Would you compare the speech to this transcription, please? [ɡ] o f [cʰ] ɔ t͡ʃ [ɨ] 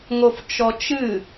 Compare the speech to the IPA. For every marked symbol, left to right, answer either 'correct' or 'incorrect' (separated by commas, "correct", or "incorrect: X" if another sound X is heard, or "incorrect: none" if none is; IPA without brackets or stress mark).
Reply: incorrect: ŋ, incorrect: t͡ʃ, correct